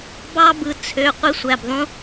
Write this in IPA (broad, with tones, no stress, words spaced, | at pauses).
bɑ˦bɯ˩˧˩ t͡sʰø˩˧˩ qʷi˦sʷæ˩˧˩bðˤũ˦